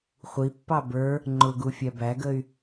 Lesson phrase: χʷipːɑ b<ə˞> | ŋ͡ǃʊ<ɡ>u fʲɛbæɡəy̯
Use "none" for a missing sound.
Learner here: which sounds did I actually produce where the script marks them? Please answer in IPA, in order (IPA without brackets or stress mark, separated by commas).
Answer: ə˞, ɡ